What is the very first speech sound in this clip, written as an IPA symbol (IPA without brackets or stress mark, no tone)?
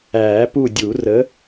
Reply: æː